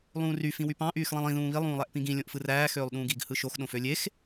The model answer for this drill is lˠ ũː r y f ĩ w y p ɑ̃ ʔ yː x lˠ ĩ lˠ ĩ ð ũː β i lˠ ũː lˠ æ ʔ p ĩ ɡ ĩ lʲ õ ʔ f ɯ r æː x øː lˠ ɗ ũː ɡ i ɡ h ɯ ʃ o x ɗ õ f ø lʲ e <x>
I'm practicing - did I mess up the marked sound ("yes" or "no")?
no